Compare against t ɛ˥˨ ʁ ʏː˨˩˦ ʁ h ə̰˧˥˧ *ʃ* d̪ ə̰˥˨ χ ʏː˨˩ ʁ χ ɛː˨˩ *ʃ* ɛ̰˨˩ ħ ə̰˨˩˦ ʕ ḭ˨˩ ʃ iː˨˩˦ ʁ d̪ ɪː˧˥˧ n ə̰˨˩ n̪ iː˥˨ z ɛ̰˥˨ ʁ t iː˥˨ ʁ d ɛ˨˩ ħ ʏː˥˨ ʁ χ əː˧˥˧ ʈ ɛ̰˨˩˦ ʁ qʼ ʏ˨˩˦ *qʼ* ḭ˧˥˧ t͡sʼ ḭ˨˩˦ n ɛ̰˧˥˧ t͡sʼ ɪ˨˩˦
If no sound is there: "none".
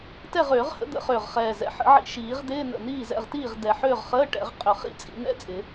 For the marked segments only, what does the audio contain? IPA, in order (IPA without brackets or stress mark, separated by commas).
none, z, χ